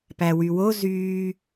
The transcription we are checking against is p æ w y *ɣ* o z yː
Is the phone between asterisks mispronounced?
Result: yes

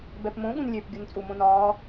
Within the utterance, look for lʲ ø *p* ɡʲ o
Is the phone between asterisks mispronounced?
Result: no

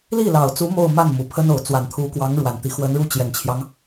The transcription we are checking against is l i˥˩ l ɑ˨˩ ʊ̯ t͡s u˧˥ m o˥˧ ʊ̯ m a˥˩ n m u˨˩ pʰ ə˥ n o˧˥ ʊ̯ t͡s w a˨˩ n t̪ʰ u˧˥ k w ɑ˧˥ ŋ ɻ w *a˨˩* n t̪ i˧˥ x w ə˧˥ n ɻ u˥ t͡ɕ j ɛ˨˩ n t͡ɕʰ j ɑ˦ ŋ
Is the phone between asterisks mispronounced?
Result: no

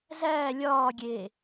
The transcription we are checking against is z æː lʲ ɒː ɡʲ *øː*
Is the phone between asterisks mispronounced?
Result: yes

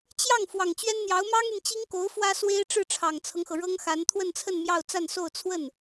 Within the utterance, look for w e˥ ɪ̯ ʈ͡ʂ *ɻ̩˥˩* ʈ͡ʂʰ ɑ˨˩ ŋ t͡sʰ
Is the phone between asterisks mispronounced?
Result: no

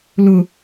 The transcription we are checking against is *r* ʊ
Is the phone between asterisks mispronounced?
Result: yes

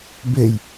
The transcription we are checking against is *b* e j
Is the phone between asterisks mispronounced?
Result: no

